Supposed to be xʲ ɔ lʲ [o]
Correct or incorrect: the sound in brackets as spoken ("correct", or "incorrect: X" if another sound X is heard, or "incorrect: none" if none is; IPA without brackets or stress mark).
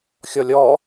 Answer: incorrect: ɔ